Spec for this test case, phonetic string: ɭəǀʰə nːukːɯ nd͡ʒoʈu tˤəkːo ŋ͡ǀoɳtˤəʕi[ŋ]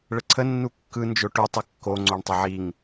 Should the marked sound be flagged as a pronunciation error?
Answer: no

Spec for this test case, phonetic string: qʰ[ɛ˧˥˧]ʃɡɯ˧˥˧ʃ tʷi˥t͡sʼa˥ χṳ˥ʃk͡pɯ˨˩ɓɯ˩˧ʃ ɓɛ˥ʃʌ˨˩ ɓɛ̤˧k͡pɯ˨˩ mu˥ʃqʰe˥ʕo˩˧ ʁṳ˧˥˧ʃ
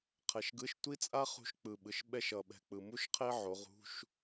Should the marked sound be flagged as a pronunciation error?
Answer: yes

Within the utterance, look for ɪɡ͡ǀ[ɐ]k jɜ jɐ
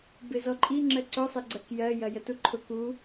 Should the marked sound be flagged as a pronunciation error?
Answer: no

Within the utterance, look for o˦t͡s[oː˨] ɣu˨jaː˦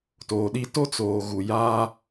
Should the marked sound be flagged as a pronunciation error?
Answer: no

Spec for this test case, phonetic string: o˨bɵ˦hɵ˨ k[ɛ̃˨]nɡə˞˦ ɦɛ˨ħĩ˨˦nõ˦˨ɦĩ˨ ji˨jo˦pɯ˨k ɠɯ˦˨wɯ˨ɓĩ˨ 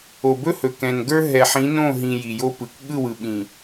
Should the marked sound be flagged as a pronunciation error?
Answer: no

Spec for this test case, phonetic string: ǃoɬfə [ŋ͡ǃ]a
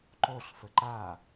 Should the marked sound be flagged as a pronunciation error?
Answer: yes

